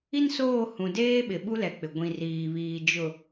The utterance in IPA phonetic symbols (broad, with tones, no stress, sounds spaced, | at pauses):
i˦ n s oː˦˨ h ũ˨ d eː˦ ɓ ɪ˨ ɓ u˦ l ɛ˨ k͡p ɪ˨ ɡʷ ĩ˨ r iː˨ β iː˨ d͡ʒ ʊ˨